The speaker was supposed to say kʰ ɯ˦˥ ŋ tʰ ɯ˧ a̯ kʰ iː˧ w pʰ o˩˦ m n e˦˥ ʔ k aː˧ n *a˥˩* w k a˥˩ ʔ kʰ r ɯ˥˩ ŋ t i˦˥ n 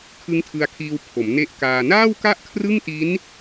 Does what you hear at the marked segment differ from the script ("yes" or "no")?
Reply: yes